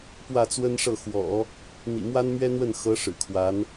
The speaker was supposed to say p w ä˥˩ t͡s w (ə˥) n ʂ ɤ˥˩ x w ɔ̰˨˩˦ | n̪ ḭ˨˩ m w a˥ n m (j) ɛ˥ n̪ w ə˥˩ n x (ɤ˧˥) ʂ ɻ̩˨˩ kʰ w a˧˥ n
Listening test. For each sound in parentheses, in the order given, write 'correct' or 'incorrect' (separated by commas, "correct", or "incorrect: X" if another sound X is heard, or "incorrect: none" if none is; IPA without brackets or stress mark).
correct, incorrect: ɥ, correct